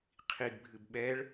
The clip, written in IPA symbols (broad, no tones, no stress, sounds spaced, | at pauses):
qʰ i ɡ bʱ ɨ b ɓ ɛ ɭ